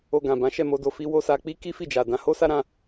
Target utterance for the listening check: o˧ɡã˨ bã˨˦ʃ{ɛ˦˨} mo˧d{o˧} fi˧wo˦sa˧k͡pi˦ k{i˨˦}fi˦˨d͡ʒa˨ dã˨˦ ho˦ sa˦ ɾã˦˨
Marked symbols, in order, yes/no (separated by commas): yes, yes, no